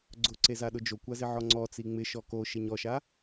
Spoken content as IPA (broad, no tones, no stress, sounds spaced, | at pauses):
ɡ͡ǀ ʊ ǀ e z a ɗ ʊ d͡ʒ o kʷ a z ɪ ʕ ɔ ŋ͡ǀ ɔ t͡s i ŋ͡m ɪ ʃ ɔ k o ʃ e ɲ ɔ ʃ a